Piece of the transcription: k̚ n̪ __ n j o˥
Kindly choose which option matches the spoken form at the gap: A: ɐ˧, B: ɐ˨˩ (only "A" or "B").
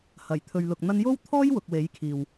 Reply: A